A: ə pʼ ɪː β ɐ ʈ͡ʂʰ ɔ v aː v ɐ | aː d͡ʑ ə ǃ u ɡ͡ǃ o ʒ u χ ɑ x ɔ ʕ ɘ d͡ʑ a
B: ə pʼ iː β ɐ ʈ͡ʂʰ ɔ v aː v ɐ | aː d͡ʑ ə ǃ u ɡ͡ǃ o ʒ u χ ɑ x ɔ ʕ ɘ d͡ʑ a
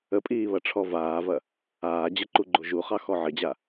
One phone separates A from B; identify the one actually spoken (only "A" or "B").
B